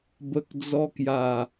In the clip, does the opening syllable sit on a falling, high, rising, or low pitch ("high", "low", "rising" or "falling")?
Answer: low